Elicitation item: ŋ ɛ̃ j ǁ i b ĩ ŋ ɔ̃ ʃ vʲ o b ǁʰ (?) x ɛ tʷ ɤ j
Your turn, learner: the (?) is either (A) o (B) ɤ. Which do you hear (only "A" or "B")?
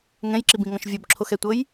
A